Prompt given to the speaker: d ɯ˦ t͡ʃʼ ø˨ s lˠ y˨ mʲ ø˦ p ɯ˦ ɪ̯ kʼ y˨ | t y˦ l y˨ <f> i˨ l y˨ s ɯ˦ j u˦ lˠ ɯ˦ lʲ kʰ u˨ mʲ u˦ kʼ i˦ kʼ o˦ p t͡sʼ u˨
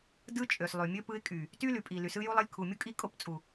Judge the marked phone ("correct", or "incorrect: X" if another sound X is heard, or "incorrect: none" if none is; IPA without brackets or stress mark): incorrect: pʼ